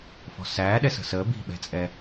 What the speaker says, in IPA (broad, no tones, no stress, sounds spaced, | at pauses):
f ɔ̤ s æː ɗ ɛ s ə̤ s əː b i̤ ɓ ɛ̤ t͡sʼ ɛ